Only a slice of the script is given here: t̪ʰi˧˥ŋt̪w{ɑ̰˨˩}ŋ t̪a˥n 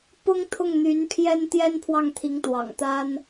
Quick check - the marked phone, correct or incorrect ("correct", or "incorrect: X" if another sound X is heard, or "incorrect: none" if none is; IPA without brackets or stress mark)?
correct